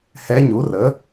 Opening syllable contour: rising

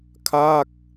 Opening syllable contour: falling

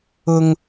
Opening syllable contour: high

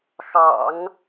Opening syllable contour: low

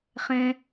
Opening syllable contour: high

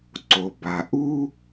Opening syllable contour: low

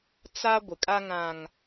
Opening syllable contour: high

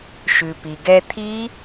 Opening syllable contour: low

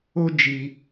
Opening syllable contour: high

